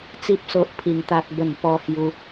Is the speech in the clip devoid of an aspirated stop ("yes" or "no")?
no